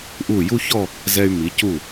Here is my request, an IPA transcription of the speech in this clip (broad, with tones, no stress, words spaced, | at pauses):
ʔu˧˩ju˥˧çɔ˥˧ | zɛ˧y̯ mi˩˧cu˧˩